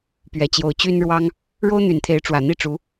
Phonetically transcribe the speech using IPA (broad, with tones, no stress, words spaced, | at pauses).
pɥɛ˨˩t͡ɕjo˧˥ʊ̯t͡ɕy˥nɻwɑ˥ŋ | ɻo˥ʊ̯n̪y˨˩nt̪ʰe˧˥ɪ̯ ʈ͡ʂwä˨˩n̪i˥˩ʈ͡ʂu˧˥